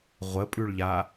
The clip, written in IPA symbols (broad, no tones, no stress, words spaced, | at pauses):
ʁʷəpʼʉɭʎa